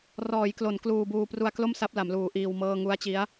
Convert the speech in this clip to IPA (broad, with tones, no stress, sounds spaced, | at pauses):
r ɔː˩˦ j k l o˩˦ n k l uː˧ b uː˧ p r u˧ a̯ k l o˥˩ m s a˦˥ p̚ l a˩˦ m l uː˩˦ ʔ iː˧ w m ɤː˥˩ ŋ u˦˥ a̯ t͡ɕ i˦˥ a̯